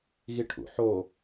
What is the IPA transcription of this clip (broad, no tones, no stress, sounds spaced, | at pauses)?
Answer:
ɣ i ʈʰ ṵ ħ o